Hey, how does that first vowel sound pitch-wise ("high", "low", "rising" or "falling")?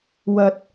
high